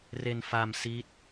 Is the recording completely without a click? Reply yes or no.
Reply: yes